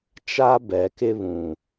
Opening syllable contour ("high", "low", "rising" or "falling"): high